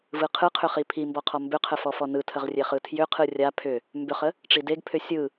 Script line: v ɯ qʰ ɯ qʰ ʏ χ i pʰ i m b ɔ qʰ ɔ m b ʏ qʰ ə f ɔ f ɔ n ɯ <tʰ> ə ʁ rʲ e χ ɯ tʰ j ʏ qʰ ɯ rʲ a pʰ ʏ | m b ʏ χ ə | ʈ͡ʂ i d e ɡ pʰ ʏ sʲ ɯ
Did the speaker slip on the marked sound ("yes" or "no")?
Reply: no